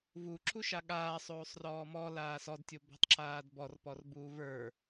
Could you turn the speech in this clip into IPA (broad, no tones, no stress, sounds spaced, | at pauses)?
v u ǁ u ʃ a ɠ aː sˤ oː sˤ r ɔː m ɔ l aː s ɔ d tʲ o b ɔ̤ tˤ ǁ aː d b ɔ r p ɔ r b uː v ə˞